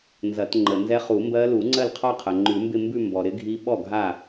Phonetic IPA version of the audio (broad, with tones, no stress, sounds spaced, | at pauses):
n z ɐ˨˩˦ t ŋ͡ǃ ə˩ n z ɛ˦˥ χ u˨˩˦ m b ɜ˦˥ l u˨˩˦ ŋ͡ǀ ɜ˥˩ l qʰ ɔ˥˧ qʰ ɐ˩ ŋ͡ǃ ʉ˨˩˦ m b ɪ˥˧ m b ʉ˥˧ m b ɔ˩ ɾ ɪ˦˥ ɡʱ i˦˥ ɓ ɔ˥˩ ɡʱ a˥˩